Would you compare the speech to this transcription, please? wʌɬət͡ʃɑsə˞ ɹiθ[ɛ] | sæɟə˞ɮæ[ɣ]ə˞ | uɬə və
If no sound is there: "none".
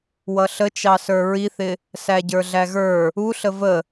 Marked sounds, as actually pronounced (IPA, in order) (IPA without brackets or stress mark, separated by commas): ɪ, ɣ